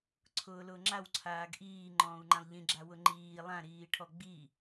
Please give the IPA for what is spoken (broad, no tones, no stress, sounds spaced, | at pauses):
ǀʰ ʊː l ʊː ŋ͡ǁ a w ǀʰ aː ɡ ʔ iː ŋ͡ǃ ɔ̃ː u̯ ŋ͡ǃ ã lˠ ʎ ĩ ɡ͡ǁ a w ʊ ŋ͡ǃ iː lˠ ã ɾ iː ʈʰ ɔ ɡ͡b i